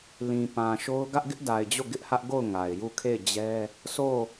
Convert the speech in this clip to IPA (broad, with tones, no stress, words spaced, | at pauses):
lĩ˨pã˨ʃo˦ʊ̯ ɡä˦ʔɡɪ˦ʔda˨ɪ̯d͡ʑo˦˨ ɡɪ˦ʔhä˦ʔɡo˦˨ʊ̯ ŋa˨ɪ̯ju˦˨ kʰe˦˨ɪ̯d͡ʑɛ˦ | sʰo˦˨